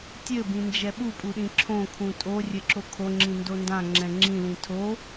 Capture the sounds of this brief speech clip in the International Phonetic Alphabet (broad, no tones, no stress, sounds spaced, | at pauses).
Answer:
tʲ ɘ b ĩ n d͡ʒ ɛ ɓ u pʼ u ɗ ĩ ǁʰ õ kʰ ũ tʼ o rʲ ɘ ǁ o kʰ o ŋ͡ǁ ĩ n d o n d ã ŋ͡ǁ ɛ̃ ŋ͡ǁ ĩ l ĩ tʰ o